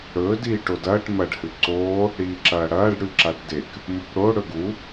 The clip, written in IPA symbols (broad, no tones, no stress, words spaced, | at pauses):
ɽɵː diːʈodɐːʈ mɐɖ hɨǀoː | ɽiːǁɐːɽɐːɖ ɽʉǁaʈdek | mupɽo ɽɵɡu